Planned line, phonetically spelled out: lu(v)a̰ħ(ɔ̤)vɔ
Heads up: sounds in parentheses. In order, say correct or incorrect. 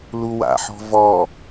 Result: incorrect, correct

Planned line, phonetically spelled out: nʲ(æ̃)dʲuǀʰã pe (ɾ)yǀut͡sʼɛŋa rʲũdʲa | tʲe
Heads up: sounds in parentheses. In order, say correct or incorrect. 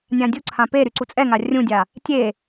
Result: incorrect, correct

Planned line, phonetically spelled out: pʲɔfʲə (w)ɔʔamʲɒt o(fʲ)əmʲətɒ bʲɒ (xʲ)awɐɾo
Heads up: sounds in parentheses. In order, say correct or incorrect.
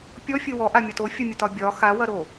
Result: correct, correct, incorrect

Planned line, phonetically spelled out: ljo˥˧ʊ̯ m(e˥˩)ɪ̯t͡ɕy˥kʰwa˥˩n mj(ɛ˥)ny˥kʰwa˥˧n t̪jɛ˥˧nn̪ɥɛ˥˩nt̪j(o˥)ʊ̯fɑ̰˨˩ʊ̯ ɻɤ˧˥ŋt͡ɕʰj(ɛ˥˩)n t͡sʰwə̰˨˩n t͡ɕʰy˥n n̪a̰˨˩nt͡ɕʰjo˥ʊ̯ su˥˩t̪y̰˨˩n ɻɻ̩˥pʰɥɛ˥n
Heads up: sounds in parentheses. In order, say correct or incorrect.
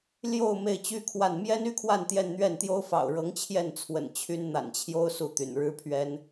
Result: correct, correct, correct, correct

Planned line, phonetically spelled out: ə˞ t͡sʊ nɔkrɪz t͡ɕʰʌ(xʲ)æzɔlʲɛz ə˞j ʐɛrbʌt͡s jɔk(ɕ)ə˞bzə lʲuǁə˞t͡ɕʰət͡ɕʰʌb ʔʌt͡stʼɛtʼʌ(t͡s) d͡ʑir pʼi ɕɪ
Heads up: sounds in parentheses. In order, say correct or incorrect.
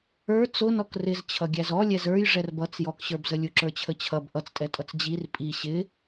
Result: incorrect, correct, correct

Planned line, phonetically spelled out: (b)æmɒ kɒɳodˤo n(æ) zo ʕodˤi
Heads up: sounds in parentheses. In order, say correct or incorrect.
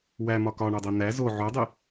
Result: incorrect, correct

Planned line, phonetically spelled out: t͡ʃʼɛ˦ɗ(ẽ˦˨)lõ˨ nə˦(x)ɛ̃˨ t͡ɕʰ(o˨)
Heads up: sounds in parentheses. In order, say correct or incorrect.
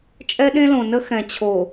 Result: incorrect, correct, correct

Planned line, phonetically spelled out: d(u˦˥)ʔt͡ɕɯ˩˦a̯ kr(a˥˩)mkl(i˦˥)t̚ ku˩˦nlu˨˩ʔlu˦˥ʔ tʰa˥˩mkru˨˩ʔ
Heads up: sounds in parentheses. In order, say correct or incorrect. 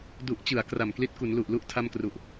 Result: incorrect, incorrect, correct

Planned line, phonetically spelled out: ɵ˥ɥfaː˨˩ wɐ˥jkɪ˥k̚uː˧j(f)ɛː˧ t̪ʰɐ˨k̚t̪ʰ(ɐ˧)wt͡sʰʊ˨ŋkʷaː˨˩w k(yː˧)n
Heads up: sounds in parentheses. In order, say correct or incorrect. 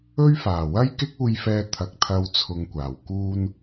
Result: correct, correct, incorrect

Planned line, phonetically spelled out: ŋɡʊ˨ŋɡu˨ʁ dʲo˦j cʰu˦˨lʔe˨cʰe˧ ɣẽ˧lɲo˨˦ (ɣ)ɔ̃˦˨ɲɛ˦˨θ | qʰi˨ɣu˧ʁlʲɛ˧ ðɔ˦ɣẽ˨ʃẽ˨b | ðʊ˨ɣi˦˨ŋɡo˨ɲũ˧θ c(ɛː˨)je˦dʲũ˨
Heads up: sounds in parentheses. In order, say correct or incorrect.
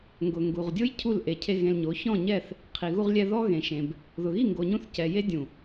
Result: incorrect, incorrect

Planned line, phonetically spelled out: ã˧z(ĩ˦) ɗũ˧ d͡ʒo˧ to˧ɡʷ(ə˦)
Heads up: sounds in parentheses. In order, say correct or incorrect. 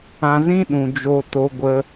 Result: correct, incorrect

